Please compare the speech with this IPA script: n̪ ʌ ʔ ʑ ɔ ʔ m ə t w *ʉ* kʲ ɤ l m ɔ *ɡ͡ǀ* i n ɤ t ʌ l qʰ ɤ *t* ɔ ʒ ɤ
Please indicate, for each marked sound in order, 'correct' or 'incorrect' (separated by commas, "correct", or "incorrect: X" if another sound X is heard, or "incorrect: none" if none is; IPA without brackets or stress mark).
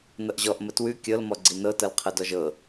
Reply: correct, correct, incorrect: d